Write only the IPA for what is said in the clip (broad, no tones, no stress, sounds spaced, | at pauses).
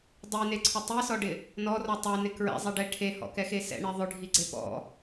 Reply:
dˤ i n e ǀʰ ʊ tˤ i s ɔ ɖ ɪ | n ɔ r ɔ tˤ ɛ n ɪ k ɹ ɛ̰ zˤ i ɖ ɛ ʈʰ e h ɔ̰ k ɛ x e s ɛ̰ ɳ e ðˤ ʊ ɖʱ i ɡ͡ǀ e p ɔ̰